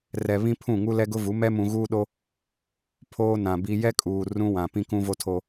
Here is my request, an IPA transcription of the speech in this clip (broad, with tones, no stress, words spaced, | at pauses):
rɛ˨βĩ˦pʰũ˦˨ ŋu˦lɛ˦ɡʊ˦vu˨˦ mɛ˦mũ˨ɣuː˦ɗo˦ | pʰoː˦nã˨bi˦ jɛ˦kʼuː˨ rũ˦wã˨ pĩ˦kũ˦vo˦tʰo˦